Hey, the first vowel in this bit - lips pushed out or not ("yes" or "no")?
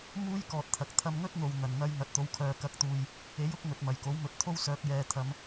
yes